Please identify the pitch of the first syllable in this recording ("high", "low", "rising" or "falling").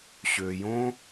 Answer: low